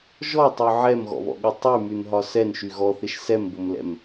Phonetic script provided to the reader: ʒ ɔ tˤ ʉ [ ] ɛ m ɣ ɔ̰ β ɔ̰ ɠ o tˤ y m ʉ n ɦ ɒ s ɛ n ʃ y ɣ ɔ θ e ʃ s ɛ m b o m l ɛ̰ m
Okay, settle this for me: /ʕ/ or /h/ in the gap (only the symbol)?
ʕ